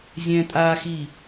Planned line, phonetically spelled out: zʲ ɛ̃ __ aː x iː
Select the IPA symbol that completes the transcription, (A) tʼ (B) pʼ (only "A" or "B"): A